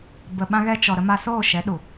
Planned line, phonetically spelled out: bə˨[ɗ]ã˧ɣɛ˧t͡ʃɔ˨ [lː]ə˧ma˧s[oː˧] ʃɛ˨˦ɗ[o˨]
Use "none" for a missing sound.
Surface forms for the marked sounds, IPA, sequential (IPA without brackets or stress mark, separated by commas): ɓ, ɾ, oː˦˨, u˨